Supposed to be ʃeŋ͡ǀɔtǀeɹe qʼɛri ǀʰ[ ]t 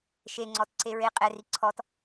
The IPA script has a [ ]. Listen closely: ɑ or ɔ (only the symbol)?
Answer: ɔ